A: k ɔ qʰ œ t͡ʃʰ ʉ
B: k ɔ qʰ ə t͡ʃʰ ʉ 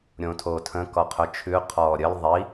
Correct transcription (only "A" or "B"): A